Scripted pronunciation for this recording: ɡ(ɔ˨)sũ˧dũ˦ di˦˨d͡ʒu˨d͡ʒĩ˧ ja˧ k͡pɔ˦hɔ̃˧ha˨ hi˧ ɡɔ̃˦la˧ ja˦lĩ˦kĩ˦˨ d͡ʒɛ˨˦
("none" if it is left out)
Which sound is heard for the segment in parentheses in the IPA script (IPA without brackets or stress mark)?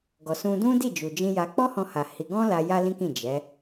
ɔ˨